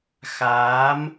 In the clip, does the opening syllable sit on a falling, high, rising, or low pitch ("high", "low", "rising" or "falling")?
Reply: rising